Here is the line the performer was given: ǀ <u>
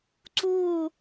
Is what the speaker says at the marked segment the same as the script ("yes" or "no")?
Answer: yes